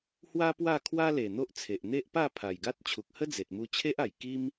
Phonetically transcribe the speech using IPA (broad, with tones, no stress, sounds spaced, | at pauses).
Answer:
h w a˦ p w a˥˧ kʰ w a˦ l e˨˩ n̪ o˦ ʔ t͡sʰ e˨ ʔ n̪ e˦ ʔ p a˥˧ pʰ a˨˩ j ɡ a˦ t̚ t͡ɕʰ u˨ k̚ h ə˦ d͡z e˨ t̚ m u˧ t͡ɕʰ e˦ ʔ a˨˩ j k i˦ m